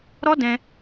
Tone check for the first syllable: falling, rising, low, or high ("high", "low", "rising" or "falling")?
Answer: high